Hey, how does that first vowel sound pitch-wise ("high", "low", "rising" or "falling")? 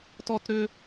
high